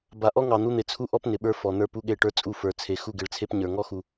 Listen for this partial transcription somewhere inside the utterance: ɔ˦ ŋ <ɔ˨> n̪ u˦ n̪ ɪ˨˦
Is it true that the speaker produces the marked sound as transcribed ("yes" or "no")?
no